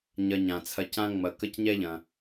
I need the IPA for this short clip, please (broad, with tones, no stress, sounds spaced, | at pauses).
ɲ ɐ˨ ɲ ã˩ t͡sʰ ɐ˨ c ã˦ ŋ͡m ɐ˨ k ə˦ c ɲ ɛ˥ ʎ ɐ̃˨